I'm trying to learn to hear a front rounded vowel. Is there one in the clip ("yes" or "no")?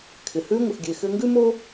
yes